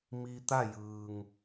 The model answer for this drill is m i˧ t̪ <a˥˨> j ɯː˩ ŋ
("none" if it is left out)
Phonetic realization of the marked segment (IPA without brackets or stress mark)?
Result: a˥˨